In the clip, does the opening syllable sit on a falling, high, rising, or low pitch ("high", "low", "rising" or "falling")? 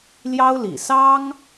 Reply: high